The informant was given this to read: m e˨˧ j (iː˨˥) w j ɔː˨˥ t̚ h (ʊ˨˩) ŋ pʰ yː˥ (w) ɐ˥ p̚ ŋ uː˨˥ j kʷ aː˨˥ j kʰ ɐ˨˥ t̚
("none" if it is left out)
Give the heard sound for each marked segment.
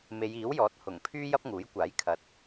iː˨˥, ʊ˨˩, j

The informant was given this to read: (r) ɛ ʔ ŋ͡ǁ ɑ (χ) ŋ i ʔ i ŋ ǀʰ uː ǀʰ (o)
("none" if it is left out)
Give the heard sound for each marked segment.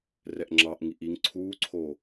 r, ʔ, oː

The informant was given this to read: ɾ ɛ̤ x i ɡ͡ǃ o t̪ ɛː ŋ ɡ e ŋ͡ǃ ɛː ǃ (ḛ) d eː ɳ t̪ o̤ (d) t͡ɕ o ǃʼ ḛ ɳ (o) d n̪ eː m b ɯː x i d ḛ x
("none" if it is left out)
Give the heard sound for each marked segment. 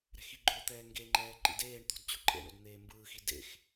ḭ, d, o̰

